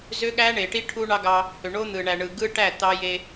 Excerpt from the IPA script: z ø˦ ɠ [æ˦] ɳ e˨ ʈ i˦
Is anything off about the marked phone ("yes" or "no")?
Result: no